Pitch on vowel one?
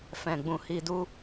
low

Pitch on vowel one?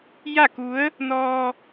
falling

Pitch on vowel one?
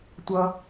low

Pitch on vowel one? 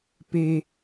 high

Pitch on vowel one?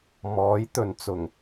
rising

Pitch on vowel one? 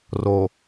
low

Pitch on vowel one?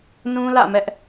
high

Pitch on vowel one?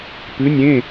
rising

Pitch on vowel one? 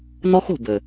high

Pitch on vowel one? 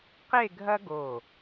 falling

